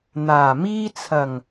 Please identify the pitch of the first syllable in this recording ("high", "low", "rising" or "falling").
low